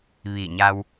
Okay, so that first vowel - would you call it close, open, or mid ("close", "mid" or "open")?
close